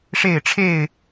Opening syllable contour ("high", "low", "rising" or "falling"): falling